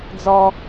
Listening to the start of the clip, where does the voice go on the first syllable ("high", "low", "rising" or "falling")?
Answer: high